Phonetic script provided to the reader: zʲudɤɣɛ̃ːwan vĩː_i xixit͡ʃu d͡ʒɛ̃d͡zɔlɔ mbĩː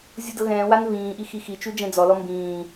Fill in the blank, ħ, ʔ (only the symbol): ʔ